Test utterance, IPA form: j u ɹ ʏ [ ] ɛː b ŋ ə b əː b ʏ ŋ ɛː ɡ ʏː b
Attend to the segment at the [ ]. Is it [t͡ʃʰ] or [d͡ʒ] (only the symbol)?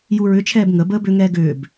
t͡ʃʰ